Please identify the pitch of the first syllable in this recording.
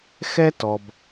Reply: high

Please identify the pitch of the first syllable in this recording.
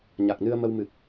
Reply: low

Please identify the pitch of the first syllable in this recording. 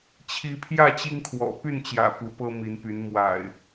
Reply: rising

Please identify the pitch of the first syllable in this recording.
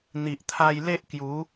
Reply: low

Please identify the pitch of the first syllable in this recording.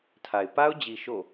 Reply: low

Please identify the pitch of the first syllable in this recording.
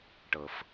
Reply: low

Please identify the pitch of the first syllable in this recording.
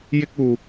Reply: high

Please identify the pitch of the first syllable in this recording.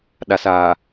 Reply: low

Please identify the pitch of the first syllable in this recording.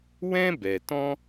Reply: high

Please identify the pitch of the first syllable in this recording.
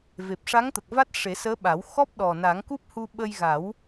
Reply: low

